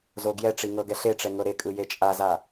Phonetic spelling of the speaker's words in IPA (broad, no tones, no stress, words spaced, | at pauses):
zoɡjɛʈ͡ʂi ŋɤɡɛɬeʈ͡ʂɛ ŋɤɾekʼɯ jet͡ʃʼaza